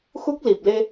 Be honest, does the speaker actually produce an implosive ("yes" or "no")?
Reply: no